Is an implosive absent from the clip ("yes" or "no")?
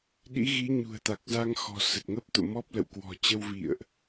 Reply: no